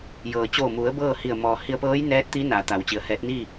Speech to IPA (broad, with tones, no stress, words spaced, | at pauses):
jɤː˩t͡ɕoː˧˩mu˩˧ə̯ bɤː˥˨hi˧˩ə̯ mɔː˩hi˧ə̯pɤː˧˥j nɛː˧˥t̚t̪i˧˥ naː˩˧t̪a˩˧wt͡ɕi˩˧ə̯hɛː˧˥t̚ niː˥˨